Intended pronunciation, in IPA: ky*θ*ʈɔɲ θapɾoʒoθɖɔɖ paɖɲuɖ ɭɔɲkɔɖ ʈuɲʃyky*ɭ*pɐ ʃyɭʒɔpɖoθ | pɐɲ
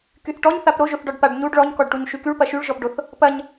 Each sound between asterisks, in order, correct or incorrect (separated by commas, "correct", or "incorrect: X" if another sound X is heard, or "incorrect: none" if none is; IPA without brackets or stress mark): correct, correct